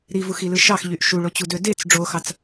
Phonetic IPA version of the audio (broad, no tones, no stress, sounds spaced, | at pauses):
ɾ i v u x i l ɯ ʃ ɑ x ʎ y ʔ ʃ u ɭ o t͡ɕ u d ø d e t͡s ɖ͡ʐ o x ɑ t͡s